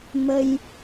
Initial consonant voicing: voiced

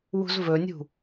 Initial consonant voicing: voiced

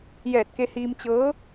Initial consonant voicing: voiced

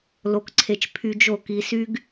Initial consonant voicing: voiced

